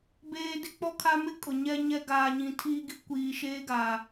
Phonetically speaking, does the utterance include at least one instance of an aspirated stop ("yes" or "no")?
yes